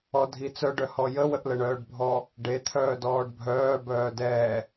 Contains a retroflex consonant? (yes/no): yes